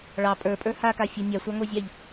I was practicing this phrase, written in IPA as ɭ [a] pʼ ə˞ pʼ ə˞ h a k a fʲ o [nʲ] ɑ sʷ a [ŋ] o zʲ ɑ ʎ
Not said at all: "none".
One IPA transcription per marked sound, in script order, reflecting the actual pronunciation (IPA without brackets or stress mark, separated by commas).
ɑ, nʲ, ŋ